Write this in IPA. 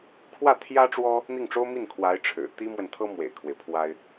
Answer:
kʰ w ä˥˩ t̪ʰ j ä˥ ʈ͡ʂ w ɔ˥ | n̪ i˥˩ ŋ ʈ͡ʂ o˥ ʊ̯ m i˥˩ n kʰ w a˧˥ ɪ̯ ʈ͡ʂʰ ɻ̩˨˩ t̪ i˥ m w ə˨ n t̪ʰ ɤ˥ m w ḛ˨˩ ɪ̯ kʰ w e˦ ɪ̯ pʰ w a˥ ɪ̯

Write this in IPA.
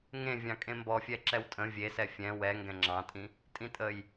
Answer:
ŋ ẽ vʲ ɑ̃ kʼ ẽ m b ɔ fʲ ɛ ǁ ɛ w tʼ ə̃ vʲ e s ɛ fʲ ɛ̃ w ɛ ŋ ɡ ɛ̃ ŋ͡ǁ ɑ̃ tʼ ĩ | tʼ ĩ tʼ ə j

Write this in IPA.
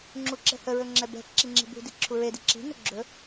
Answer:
ŋ͡ǁ u ǁ ɛ̤ h ə ɹ ɵ ŋ͡ǁ ɛ b ɛ̤ ǁ i ŋ͡ǁ i̤ b ṳ d i ǁʰ u ɹ e d i ǁ i̤ n ɵ ɡ͡ǁ ɵ

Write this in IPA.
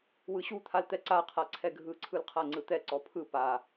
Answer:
w ɯ ɕ u t̪ʰ a l t̪ ɛ ǀ a qʰ a ǀʰ ɛ ɡʱ ɯ ǀʰ ɯ l qʰ a ŋ͡ǀ ɯ t̪ ɛ ǀ ɔ pʰ ɯ p a

